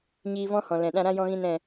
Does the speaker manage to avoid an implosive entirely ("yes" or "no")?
no